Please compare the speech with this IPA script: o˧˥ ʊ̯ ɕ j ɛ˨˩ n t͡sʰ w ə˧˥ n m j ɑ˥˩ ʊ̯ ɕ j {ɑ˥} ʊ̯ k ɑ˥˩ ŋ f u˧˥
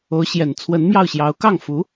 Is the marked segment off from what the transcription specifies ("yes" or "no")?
yes